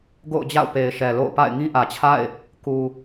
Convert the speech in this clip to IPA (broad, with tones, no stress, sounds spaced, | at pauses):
ɡ o̰˦˨ ʊ̯ d͡ʑ a̰˦˨ ʊ̯ p e˨ ɪ̯ ʃ ɛ˨ l o̰˦˨ ʊ̯ p a̰˦˨ ɪ̯ ŋ ĩ˦ ʔ ä˨ t͡ɕʰ a̰˦˨ ɪ̯ | k u˨